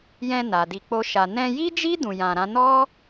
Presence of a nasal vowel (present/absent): present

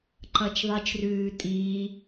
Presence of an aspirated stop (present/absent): absent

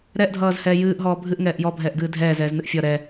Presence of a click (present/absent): absent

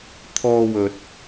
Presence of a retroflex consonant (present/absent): absent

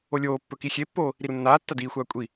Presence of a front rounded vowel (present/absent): absent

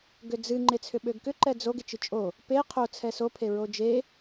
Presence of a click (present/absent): present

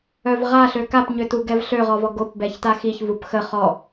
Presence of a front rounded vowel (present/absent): present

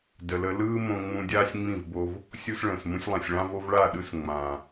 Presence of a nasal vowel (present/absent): present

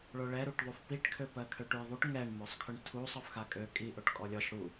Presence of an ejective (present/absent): present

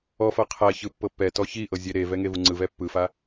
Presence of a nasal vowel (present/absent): absent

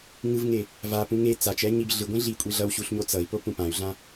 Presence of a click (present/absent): absent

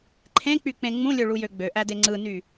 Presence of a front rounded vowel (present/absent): present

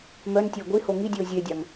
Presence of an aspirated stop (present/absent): absent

